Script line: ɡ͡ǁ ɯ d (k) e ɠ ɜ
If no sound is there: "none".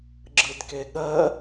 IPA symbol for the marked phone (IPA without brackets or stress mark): k